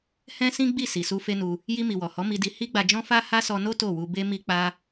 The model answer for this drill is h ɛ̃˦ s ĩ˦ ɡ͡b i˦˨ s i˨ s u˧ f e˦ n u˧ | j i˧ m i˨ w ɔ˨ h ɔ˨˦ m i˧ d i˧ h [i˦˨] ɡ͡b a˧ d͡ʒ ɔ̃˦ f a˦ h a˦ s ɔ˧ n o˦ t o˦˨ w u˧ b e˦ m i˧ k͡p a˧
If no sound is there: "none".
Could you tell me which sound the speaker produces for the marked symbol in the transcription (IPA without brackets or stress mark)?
i˦